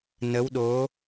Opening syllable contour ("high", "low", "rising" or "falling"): rising